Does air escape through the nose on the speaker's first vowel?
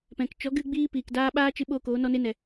yes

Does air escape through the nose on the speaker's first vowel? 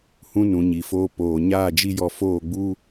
yes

